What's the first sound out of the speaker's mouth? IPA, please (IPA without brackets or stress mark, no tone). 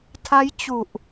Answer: tʰ